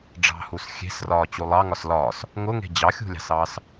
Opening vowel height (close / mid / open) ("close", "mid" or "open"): open